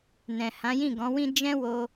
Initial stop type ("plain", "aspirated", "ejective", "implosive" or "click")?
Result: plain